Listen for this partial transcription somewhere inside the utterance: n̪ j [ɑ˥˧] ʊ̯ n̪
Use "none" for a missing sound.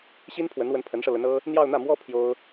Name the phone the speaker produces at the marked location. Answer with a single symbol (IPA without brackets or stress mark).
ɑ˥˧